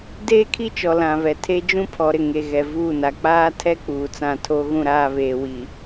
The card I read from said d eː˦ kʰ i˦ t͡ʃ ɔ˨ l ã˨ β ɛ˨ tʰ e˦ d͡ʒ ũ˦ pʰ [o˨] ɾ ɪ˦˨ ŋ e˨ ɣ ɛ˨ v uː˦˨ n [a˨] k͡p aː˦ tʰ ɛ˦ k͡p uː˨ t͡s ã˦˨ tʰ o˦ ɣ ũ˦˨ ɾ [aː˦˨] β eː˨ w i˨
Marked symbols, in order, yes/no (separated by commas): no, yes, yes